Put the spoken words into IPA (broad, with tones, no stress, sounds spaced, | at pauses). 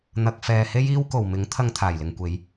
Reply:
n̪ ɐ˨ k̚ f ɛː˨ h e˥ j iː˥ w k o˨˩ w m ɪ˨˥ ŋ t̪ʰ ɐ˧ ŋ t̪ʰ aː˨˩ j l ɪ˨ ŋ kʷ e˨˧ j